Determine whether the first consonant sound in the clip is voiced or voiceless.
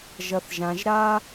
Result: voiced